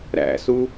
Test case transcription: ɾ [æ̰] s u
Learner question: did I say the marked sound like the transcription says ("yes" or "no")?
yes